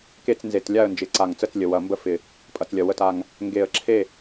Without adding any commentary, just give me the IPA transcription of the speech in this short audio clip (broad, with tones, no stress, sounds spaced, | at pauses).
k e˦˨ t͡s n z e˨˩ t lʲ a˦˨ ə̯ n d͡ʒ ɪ˨˩ ǀ a˨˩ ŋ t͡s ə˦˨ t͡s lʲ ə˨˩ w ɐ˨˩ m b ə˦˨ f ɪ˨˩ | pʼ ɐ˨˩ t͡s lʲ ɐ˨˩ w ə˨˩ t a˨˩ ŋ | ŋ ɡ e˨˩ ə̯ ǁʰ e˦˨